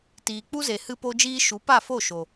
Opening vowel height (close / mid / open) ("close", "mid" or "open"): close